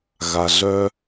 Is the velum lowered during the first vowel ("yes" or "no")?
no